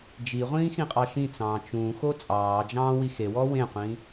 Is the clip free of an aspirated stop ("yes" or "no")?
yes